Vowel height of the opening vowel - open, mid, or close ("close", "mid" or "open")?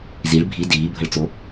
close